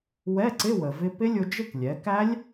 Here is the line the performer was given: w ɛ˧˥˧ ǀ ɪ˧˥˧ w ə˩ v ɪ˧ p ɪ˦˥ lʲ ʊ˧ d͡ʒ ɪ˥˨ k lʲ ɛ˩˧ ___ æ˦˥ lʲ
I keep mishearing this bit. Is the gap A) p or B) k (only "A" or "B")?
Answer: B